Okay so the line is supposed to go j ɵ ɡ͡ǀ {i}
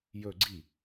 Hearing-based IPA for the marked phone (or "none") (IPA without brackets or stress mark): i